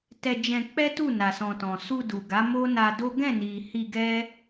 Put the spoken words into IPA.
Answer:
tɛ˧d͡ʒɛ̃˧ k͡pɛ˦tu˦˨na˨sɔ̃˨ tɔ̃˨ su˧du˨ɡa˨˦ mo˦na˧do˦ ɡɛ̃˦˨ni˨ hi˧ɡɛ˦

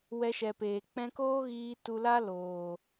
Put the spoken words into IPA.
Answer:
wɛ˧ʃɛ˨peː˨ k͡pɛ̃˧koː˦ɣiː˧ tu˧la˦loː˨

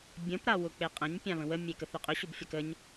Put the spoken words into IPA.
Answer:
bʲə̃p ɾawʊk͡peqʼə̃ɲ pʲãβə̃wə mʲekəθʏqʼʏ ɕʊbfʲakəɲ

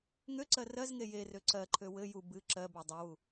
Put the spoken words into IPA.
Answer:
ŋøǀɜ rɜzŋe je røǀɜǃʰø wɘ ju bɨ ǁɜbo dˤøwu

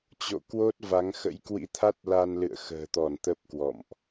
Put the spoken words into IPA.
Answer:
t͡ɕo̰˧˨kwo˦˥t̚ va˨˦ŋxə̰˧˥j kwḭ˧˥t̪ʰa˦˥t̚ la˧nlɨ̰˧˨ə̯xə̤ː˨˩t̪ɔ˧˩n t̪ə˦˥p̚kwɔ̰˧˨mʔ

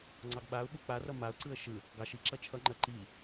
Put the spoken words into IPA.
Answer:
ŋ͡ǀɑɡɓaʊ̯ɓu k͡parʌ maʊ̯ǀɯə̯ ʃɯ | ɡɑʃi ǁʌt͡ʃʰʌŋ͡ǃɜ ǃi

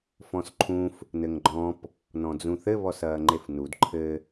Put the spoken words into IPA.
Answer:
fɔ̃sǃʰũf | nɘŋɡ͡ǃɔ̃p | nɔ̃d͡zũθɘ βɔsɐːŋ͡ǃefnud ǃʰɘ

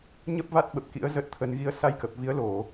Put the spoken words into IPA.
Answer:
ɲə˦˥p̚ va˦˥t̚ɓə˨˩p̚kḭ˧˥ə̯ zə˦˥t̚t̪ʰə˧n ɣi˨˦ə̯sa˧jkə˨˩p̚ vi˨˦ə̯lo˧˩˨

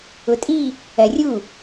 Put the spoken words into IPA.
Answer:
ʊtʼi | ɜrʲu

